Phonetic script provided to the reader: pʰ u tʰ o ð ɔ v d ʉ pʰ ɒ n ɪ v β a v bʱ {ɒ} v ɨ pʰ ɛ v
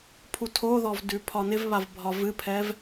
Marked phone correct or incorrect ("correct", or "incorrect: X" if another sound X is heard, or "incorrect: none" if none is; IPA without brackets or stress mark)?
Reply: correct